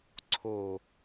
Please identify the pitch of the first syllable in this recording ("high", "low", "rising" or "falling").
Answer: low